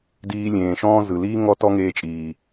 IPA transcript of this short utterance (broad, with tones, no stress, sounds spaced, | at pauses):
d iː˧ lʲ ẽː˨ ʃ ɔ̃ː˦ z ɯ˨ l iː˦ ŋ ɔ˦ t ɔ˦ ŋ eː˧ t͡ʃʼ iː˨